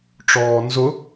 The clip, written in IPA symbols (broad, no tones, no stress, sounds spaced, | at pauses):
ʈ͡ʂ ɔː n z ʊ